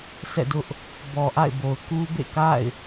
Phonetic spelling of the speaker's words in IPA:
sɛ̰˦˨dʊ˦ʔ | bɔ˨ʔa̰˦˨ɪ̯bo˨ʊ̯ ku˦bḛ˦˨ka̰˦˨ɪ̯

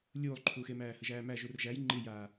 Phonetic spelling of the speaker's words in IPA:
lʲuːlˠǃʰuːxemæː həʒæːmæ ʒurʒæj ŋ͡ǃijaː

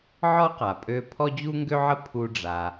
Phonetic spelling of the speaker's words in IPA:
ʕɔ˥qa˩pʼø˧ pʰɔ˥d͡ʑu˥ŋɡø˥ʕə˥ pʰu˧ɖ͡ʐa˩

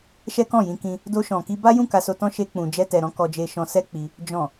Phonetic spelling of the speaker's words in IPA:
ʃɛ˦kɔ̃˦˨jĩ˧kĩ˧ | do˧ʃɔ̃˨ki˧ ba˦jũ˦˨ ka˧so˧tɔ̃˦ ʃe˦k͡pũ˧ d͡ʒɛ˦tɛ˧ɾɔ̃˦ kɔ˧d͡ʒe˧ʃɔ̃˧ sɛ˦k͡pi˧ | d͡ʒɔ̃˨

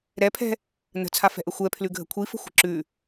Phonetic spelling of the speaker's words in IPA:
ɾɛpʰɛ̤ | nə̤t͡sʰafɛ̤ʔə xʷɛpʰlʉɡʱə̤ kʷʰifə̤xʷə̤ ǁʉ

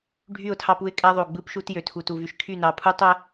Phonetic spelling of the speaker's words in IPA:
ɖʱy˦˨ʊ̯tʰɑ˦pu˦ɪ̯kʼæ˦ ðˤo˨ɡ͡bɯ˦pʃu˦t jø˨tʰu˨tu˨ vy˨ʃkʰy˦˨nɑ˨pʰu˦ tˤæ˦

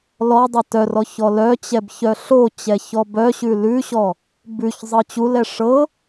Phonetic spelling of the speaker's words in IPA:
lɔdˤɛ tœrɔ çɔlœt͡ɕɛb çœɬot͡ɕɛ çɔbœɕʉ lʉɕɔ | bʉç zˤɤt͡ɕulɛ ʂɤ

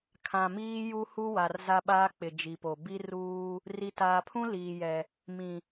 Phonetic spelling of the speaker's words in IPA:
kʰã˨miː˦ ju˦hu˦ wa˨rza˦ɓaː˦ k͡pɪ˨ d͡ʒi˨po˨ bi˦ruː˦ | ri˨taː˨pʰũ˦ liː˨jɛ˨ | mĩ˨

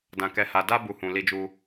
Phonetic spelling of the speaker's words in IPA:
dã˨kɛ˨˦ha˧ da˦ bu˧hũ˨ li˧d͡ʒu˧

